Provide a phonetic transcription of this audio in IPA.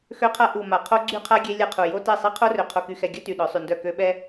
xø˦qʰa˦ ʔu˨ ma˨qʰo˦ɡ͡ǀy˦qʰa˦ ɡʲe˦lʲa˦qʰu˨ jo˦tɛ˦˨ sˤɛ˦qʰo˦rø˨ qʰo˨ky˨xɛ˨ ɡʲœ˦ ty˨ɗœ˨˦ sˤy˨ndœ˦˨ kø˦ ɓɛ˦

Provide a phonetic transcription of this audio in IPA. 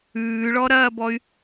ʉːɭɔɾɐːbɔy̯

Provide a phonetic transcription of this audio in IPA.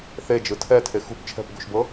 θe d͡ʒɯtʰɛ tʰexṳp t͡ʃʰɛ̤pɡṳʃbɤ

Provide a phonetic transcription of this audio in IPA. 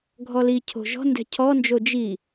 ɡʱɔlicʰo̤ ʒɔ̤ndɛ̤ cʰɔnd͡ʒo d͡ʒi

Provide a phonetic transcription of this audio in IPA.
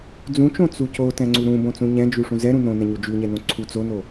d͡zũt͡ʃõ t͡suco tɛ̃ŋ͡ǀuɾũ bõt͡sũɲɛ̃d͡ʒʉ ʂũzɛɾũ nõnɛ̃ɲu d͡ʒʉɲɛnõ ǀʰu t͡sono

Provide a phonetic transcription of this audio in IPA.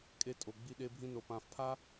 kʼe˧tʼo˨ɡ͡bi˧ ɗe˧bʱĩ˧no˨ pã˨fpʰa˦

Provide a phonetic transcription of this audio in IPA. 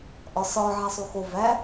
ʔɒsɒ ʕæsˤuxo væ

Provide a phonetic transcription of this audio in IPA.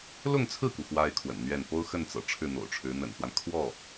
lʊ˥˧ŋt͡sʰɹ̩˥˩ku˩ xwa˥ɪ̯kʰwə̰˨˩nn̪ɥɛ˥˩n po˥ʊ̯xə˥˩nt͡sɤ̰˨˩ ʈ͡ʂʰɻ̩˥˩n̪o̰˨˩ʊ̯ʈ͡ʂʰɻ̩˧˥ n̪ə̰˨˩nxwa˦n kʰwɔ˥˩

